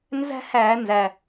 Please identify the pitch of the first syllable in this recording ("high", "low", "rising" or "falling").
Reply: high